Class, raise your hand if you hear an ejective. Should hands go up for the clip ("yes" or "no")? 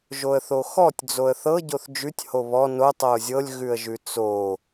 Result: no